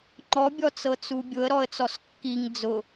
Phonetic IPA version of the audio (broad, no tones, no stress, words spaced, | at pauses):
ŋ͡ǃɔbʲɔt͡sɤt͡su bʲʊə̯ɾɔə̯t͡sɔs kːiŋ d͡zʊ